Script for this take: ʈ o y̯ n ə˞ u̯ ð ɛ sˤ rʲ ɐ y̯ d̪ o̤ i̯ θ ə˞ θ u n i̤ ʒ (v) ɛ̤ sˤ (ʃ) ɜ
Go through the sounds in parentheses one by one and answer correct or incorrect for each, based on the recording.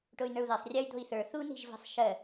correct, correct

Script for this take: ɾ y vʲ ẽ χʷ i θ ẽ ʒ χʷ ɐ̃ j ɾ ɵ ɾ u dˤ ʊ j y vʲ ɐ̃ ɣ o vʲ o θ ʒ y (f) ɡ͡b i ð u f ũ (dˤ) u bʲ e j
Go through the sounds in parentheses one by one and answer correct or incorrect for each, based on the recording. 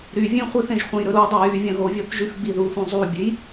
correct, incorrect: zˤ

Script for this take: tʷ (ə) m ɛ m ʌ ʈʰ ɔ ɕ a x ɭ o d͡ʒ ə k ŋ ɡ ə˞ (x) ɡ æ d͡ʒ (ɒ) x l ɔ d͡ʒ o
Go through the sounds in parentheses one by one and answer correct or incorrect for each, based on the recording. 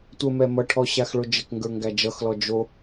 correct, incorrect: ŋ, incorrect: ʌ

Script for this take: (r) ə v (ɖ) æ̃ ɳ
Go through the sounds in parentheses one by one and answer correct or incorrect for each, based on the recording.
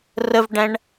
correct, correct

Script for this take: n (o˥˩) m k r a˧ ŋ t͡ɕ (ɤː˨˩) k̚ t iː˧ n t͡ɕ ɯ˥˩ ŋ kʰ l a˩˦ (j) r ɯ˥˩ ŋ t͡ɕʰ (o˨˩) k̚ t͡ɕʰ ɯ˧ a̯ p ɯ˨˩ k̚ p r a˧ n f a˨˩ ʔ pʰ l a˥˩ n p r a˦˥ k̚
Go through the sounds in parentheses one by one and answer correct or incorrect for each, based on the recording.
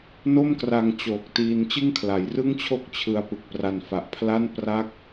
correct, incorrect: oː˨˩, correct, incorrect: o˥˩

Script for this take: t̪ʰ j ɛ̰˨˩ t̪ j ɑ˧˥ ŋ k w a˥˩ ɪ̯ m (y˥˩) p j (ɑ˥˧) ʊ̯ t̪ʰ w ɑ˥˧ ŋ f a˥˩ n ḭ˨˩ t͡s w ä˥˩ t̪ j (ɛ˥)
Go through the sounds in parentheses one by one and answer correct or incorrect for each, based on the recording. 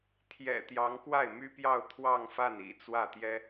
incorrect: y˥, correct, correct

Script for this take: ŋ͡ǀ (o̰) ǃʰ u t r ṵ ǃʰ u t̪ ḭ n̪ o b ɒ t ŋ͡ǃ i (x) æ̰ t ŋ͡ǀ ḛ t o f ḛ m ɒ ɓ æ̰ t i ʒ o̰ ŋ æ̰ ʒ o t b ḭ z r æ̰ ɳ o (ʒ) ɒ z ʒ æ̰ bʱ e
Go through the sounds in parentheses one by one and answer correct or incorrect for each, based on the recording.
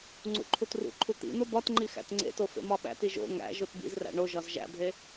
incorrect: ṵ, correct, correct

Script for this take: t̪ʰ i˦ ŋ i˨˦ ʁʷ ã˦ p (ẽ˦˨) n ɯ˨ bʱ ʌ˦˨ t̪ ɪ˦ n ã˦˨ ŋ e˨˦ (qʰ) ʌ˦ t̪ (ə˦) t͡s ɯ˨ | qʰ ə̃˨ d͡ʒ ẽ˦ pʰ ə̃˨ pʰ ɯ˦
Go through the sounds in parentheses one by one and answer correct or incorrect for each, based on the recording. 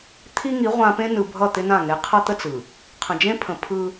incorrect: ẽ˦, correct, correct

